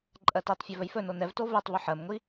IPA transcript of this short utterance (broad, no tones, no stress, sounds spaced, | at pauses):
ǃʼ ɜ t i tˤ fʲ ɵ v ɵ j f ɵ n o n ɛ v t o v ɛ tˤ v ɵ ħ ɜ m ŋʷ i